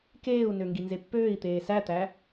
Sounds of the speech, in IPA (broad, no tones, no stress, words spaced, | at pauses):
keːu̯nø ŋɡinzepːøːi̯t̪eː sæt̪æ